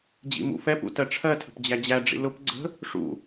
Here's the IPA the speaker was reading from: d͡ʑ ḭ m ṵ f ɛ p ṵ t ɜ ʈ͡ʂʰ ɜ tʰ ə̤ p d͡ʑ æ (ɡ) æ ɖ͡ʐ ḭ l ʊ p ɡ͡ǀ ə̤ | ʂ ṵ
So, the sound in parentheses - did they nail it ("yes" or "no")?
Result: no